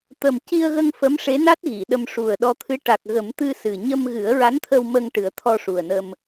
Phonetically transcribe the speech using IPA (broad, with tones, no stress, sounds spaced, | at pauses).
t̪ ə˨˩ m c i˧ ə̯ ɣ ə˧ ŋ f ə˧˥ m ʂ e˧˥ n a˦˥ t̚ ɣ i˨˩˨ ɗ ə˧ m ʂ u˨˩ ə̯ ɗ ɔ˧ t̪ʰ ɨ˧˥ ʈ a˨˩ k̚ ɣ ə˨˩˦ m t̪ ɨ˧ s ɨ˨˩ ɲ ə˧ m ɣ ɨ˨˩˦ ə̯ ɹ a˧˥ n t̪ʰ ə˧ w m ə˧ ŋ ʈ ɨ˨˩˦ ə̯ t̪ʰ ɔ˧ ʂ u˨˩ ə̯ n ə˧ m